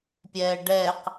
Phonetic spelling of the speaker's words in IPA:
pʲ ɛː ɖ ɛː q

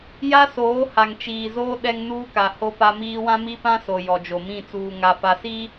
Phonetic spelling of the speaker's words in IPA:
j a˦ s oː˨˦ h a˨ ŋ t͡ʃ iː˨ z oː˦ ɗ ɛ˦ ŋ n uː˦ k a˨ h o˦ p a˦ m iː˦ w ã˦ m i˦ p ã˦ s o˨ j ɔ˨ d͡ʒ o˨ m ĩ˦˨ t͡s uː˨ ŋ a˨ f a˨ s i˦

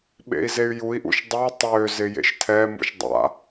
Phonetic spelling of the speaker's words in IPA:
ɓ ḛ i̯ z e y̯ j u i̯ ʔ ṵ ʃ dˤ ɯ tˤ ø z ɪ j ḛ ʃ tʰ ɛ m ṵ ʃ dˤ a̰

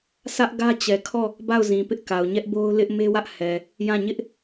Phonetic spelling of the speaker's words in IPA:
sʰ ä˦ ʔ ɡ ä˦ t͡ɕ ɛ˨ kʰ ɔ˦˨ | b a˦˨ ʊ̯ z ĩ˨ p ɪ˦ ʔ k a˨ ʊ̯ ɲ ɛ˦ ʔ b o˦ ʊ̯ l ɪ˦ ʔ m e˦ w ä˦ ʔ h ɛ˨ | j ã˦˨ ɲ ɪ˦ ʔ

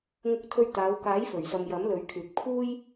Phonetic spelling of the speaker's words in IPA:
ŋ ʊ˧ k̚ t̪ʰ ɵ˧ ɥ t̪ aː˨˧ w k aː˨˥ j f ɵ˨˩ ɥ s ɐ˨ m j ɐ˨˥ m l ɵ˨˥ ɥ kʰ yː˨ k̚ pʰ uː˥ j

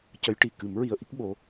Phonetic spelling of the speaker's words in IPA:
c ə˧˥ j ʈ i˨˩ k ɨ˨˩˦ m ɹ i˧ ə̯ ʔ i˦˥ k̚ ɓ o˧

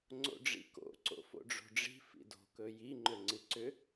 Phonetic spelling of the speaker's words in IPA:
ŋ͡ǀ o̰ ɖ͡ʐ ḭ k o̰ ǀ o̰ f o̰ ɖ͡ʐ o̤ ɖ͡ʐ i̤ f ḭ d o̤ k ɵ j i ŋ͡ǃ ø ŋ͡ǀ ɨ ǀ ʏ

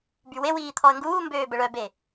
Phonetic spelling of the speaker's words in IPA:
b y w e w iː t̪ʰ ɔ ə̯ ŋ ɡ uː m b øː b ə ɭ œ b e

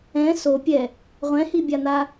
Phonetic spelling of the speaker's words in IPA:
ɛ̃ s o pʲ ɛ | ʁʷ ɛ̃ h i bʲ a n̪ a

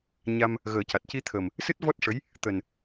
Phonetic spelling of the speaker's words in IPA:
ɲ a˧ m | ɣ əː˨˩˦ c a˨˩ t̚ c i˧ t̪ʰ ə˨˩ m | s ɨ˦˥ t̚ v ɔ˦˥ t̚ ʂ ə˧˥ j | t̪ əː˨˩ n

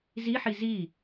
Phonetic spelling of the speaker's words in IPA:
z i ħ i z i

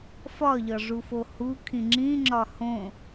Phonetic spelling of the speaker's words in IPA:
f ɒ ʎ ɒ ʐ u f o h u kʰ ĩ ŋ͡ǁ ĩ ŋ͡ǁ ɒ h õ

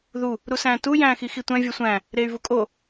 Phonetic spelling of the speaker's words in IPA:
ð u | ɾ u s æ̃ː t u j æ̃ː x i x i tʷ æ̃ vʲ ɒ sʷ æ̃ | ɾ eː y̯ v u kʼ o

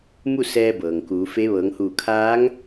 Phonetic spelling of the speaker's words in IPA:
m u˥˨ s ɛː˧ b ɤː˩ ŋ k uː˩˧ f e˧˥ ʋ ɤː˩˧ ŋ h uː˧˩ kʰ aː˧˥ ŋ

